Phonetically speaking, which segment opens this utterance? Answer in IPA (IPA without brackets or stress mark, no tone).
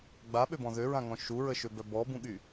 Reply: ɡ͡b